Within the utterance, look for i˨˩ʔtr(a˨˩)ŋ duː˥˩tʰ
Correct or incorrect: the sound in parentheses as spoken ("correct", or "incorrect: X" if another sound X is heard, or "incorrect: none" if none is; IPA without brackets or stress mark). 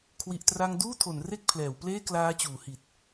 incorrect: a˧